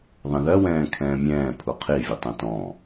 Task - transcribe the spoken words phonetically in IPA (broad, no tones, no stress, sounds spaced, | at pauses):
ðˤ ɛ̃ ð ɜ w ɛ̃ː kʰ ɛ̃ː mʲ ɛ̃ː pʰ u qʰ i vʲ e tˤ ɛ̃ t ɔ̃